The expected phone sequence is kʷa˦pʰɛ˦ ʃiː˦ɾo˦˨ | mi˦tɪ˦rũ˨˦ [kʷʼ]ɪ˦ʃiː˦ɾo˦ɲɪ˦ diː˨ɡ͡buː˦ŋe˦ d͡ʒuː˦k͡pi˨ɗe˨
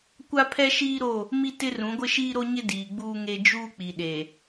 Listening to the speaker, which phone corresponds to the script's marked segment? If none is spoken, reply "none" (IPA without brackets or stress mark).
ɡʷ